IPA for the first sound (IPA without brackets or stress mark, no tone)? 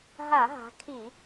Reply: ɦ